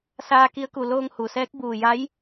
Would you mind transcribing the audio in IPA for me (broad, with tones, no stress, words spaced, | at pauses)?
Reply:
saː˧ki˧˥ə̯ku˧˩ loː˧ŋhu˩sɛː˧˥k̚ buː˧˩ja˧˥j